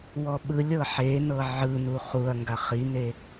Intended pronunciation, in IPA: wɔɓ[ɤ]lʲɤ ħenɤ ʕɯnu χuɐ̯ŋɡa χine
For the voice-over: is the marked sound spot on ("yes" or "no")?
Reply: no